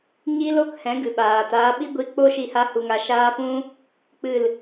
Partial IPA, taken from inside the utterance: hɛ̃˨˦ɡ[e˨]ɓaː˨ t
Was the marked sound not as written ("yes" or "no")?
yes